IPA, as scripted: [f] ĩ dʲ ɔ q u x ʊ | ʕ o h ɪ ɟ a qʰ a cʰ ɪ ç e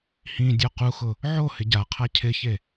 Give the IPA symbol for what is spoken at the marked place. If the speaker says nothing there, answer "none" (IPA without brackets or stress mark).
h